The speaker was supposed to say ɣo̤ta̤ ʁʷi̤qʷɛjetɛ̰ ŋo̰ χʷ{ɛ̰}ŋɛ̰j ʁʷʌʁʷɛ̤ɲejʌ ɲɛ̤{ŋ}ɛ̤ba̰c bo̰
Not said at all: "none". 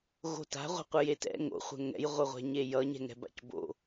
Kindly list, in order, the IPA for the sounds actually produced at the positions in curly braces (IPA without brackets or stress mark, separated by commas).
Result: ɛ̤, ŋ